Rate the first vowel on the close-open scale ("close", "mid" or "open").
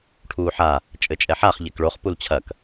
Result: close